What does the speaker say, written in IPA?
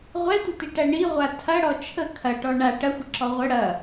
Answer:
ʁʷ ɛ tʷ ə t i ʈ æ ɳ i ʁʷ a tʰ ɐ ɽ ɔ t͡ʃʰ ə kʰ ɐ ʈ ɔ ɳ a ʈ ɐ xʷ ə ǁ ɔ ʁʷ ə ɽ ɐ

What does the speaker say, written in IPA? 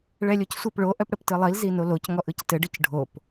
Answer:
ɭ ɛ lʲ o c sʷ ɘ p ɭ o ʔ œ p ɽ ə p t ɯ lˠ i l z i n o l o c ŋ ɔ ʔ ɯ c t ɘ ɖ ɯ c ɖʱ o p

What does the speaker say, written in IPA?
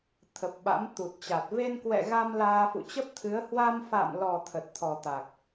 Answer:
t̪ʰ ə˨˩ p̚ ɓ a̰˧˥ m t̪ u˨˩ t̚ t͡ɕ a˨˩ t̚ v e˧ n k w ɛ̰˧˨ ɣ a˧ m l aː˧ f ṵ˧˨ t͡ɕ ə˦˥ p̚ t̪ʰ ɨ˨˦ ə̯ h w a˧ m f a̰ː˧˨ m l ɔ˨˩ t̪ʰ ə˨˩ t̚ t̪ʰ ɔ˨˩ t̪ a˨˩ k̚

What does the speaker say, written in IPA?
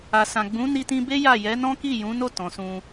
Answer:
a˨ s ã˨ ɡ͡b ũ˨˦ n i˧ t ĩ˧ b e˦ j a˦˨ j ɛ˨˦ n ɔ̃˦ k i˦˨ j ũ˨˦ n o˦˨ t ɔ̃˨ s ũ˧

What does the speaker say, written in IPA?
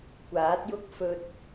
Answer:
kʷ aː˨˥ t̚ j ʊ˥ k̚ f ɵ˧ t̚

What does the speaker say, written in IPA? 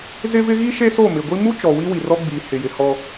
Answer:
z ɪ˦ v ɪ˦ ɣ i˦ ʃ e˦ s o˦˨ m ɪ˨ ɡʷ i˦ m u˦ t͡ʃ ɔ˨ w i˦ w i˨ r ɔ˦ ɡ͡b iː˨ h ɪ˨ j ɪ˨ h ɔ˦

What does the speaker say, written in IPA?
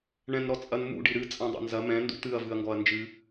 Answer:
ɳ ɛ̃ n ɾ ɔ t͡sʼ ɐ n m ṵ ɖ i ɾ ɨ t͡sʼ ɐ̃ dˤ ḛ n z ɐ m ɛ̃ n d ṵ t̪ ɨ ɐ̯ v ɨ ɐ̯ ŋ ɡ ɔ ɐ̯ n d͡ʒ ɨ

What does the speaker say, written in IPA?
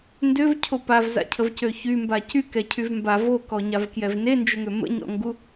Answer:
n d ø v cʰ o p a v z a̰ cʰ ə v c ø ç y m b a c y k ɛ cʰ y v m b a v o k ɔ ɲ a v k j ɛ v n e n d͡ʒ ə ŋ ø m ə̰ ɲ ɔ̰ ŋ ɡ u

